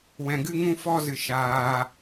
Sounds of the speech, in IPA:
w ɛ̃˧ ɡ ɨ˦ ŋ ũ˦ f ɔ˦ z ɨ˧ ʃ aː˧

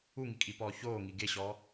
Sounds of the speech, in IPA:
u ŋ i kʼ i p ɔː ç oː ŋ i ɡ e ɕ ɔː

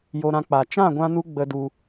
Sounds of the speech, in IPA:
j o˧ ɾ ã˧ k͡p a˨ t͡ʃ ã˦˨ ɡʷ ã˧ n u˧ ɡ͡b ə˧ d u˧

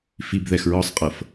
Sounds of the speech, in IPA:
f i b ð ɛ x ɹ ɔ sˤ qʼ ɤ f

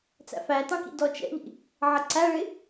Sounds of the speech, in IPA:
t͡s æ̰ f æ t ɑ̃ k ḭ d ɔ t͡ʃ ɛ̰ ʎ ḭ | ʕ ʌ ǀ æ ɭ ɪ

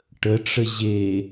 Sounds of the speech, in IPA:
ʈ ə ʈ͡ʂ ə ʑ e

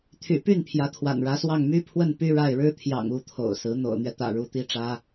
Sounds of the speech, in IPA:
t̪ʰ y̰˨˩ p y˥˩ n pʰ j ä˧˥ t̪ʰ w a̰˨˩ n ɻ ä˧˥ s w ɑ˥˩ ŋ m y˥ pʰ w ə˥˩ n p y˥ ɻ a˥˩ ɪ̯ ɻ ɻ̩˥ t̪ʰ j ɑ̰˨˩ ŋ u˧˥ t̪ʰ o̰˨˩ ʊ̯ s ɹ̩˧˥ n̪ o̰˨˩ ʊ̯ n̪ ɥ ɛ˦ t̪ ä̰˨˩ ɻ u˧˥ t̪ i˥ ʈ͡ʂ ä˥

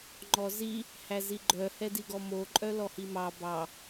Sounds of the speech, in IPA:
ŋ͡ǃ ɔ z i | h æ z i ɡ͡ǃ œ h ɛ d i ɡ ɔ m o ǃʼ œ l ɔ h i m ɑ b ɑ

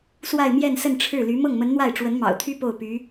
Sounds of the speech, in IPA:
s w a˥˧ ɪ̯ m j ɛ˥˧ n s ə˥˧ n ʈ͡ʂʰ ɻ̩˥˩ l y˧˥ m ɤ˥˩ ŋ m ə˧˥ n n̪ w a˥˩ ɪ̯ ʈ͡ʂ w ə˧˥ n m ɑ̰˨˩ ʊ̯ t̪ʰ y˥ p o˥˩ ʊ̯ p y˧˥

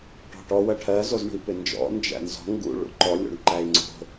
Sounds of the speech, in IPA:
ʈ ɔ̤ ʈ ɔ w ɜ ʈʰ ɜ z o z ɳ ṳ i̯ p ɪ n d͡ʒ ɔ̰ n d͡ʒ æ̰ n z ɔ̤ ŋ ɡ ṵ ɭ ṵ ǃ ɔ lʲ o̰ ɳ ǃ æ i̯ ŋ͡ǀ o̤

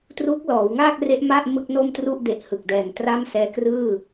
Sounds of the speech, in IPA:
t r uː˦˥ k̚ l ɔː˩˦ w ŋ aː˥˩ k̚ r e˦˥ ʔ m a˥˩ ʔ m ɯ˥˩ k̚ n o˥˩ m t r u˥˩ ʔ d e˨˩ ʔ h ɯ˨˩ k̚ d ɛː˨˩ ŋ t r a˥˩ m s ɛː˦˥ k r ɯː˥˩

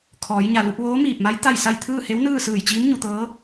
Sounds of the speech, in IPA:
kʰ ɔː˩˧ j ɲ a˩ l u˧ p̚ ʋ oː˧˥ m iː˧˩ p̚ m a˧˥ j t̪ a˥˨ j s a˥˨ j t̪ʰ ɯː˥˨ h e˧˥ w n ɯː˥˨ s ɯː˧˩ j t͡ɕ iː˧˥ m ɲ u˩˧ t̪ ɤː˧˥

